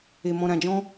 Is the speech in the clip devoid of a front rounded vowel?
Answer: yes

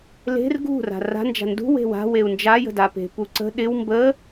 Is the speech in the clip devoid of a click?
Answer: no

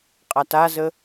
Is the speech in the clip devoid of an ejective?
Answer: no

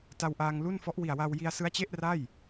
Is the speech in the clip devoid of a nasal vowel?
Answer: yes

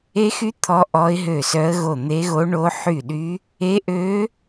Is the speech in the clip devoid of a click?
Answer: yes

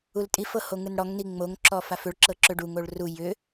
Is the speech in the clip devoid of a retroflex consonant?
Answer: no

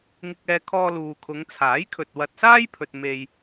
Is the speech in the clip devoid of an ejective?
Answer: yes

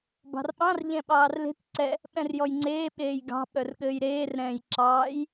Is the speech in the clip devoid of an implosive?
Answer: no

